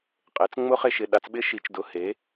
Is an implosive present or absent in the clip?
present